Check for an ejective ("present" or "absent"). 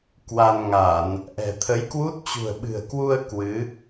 absent